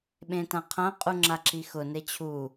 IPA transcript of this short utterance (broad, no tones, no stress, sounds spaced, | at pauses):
ɓ ẽ t ã qʰ ã qʼ u ŋ͡ǁ a ǁ i x ʊ n e t͡ɕʰ u